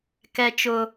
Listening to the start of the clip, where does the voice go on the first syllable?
high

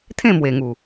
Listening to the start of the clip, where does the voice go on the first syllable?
falling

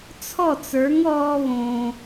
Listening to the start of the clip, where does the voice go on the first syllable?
falling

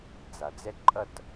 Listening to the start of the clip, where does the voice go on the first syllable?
low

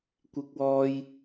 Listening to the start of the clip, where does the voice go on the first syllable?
high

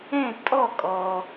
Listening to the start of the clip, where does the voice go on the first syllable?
falling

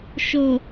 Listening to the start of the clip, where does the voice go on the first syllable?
low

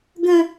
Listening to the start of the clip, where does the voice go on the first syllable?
high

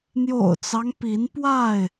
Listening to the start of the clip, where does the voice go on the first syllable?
low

